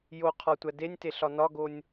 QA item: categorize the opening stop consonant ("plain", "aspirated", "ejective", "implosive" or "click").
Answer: aspirated